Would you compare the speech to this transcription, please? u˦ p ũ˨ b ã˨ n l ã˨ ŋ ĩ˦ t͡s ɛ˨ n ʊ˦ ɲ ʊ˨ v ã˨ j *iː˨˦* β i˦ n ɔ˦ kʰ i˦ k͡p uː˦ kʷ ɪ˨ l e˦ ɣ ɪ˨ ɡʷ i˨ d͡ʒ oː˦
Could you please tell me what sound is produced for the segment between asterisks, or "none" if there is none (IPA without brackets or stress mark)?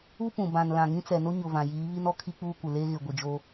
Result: iː˨˦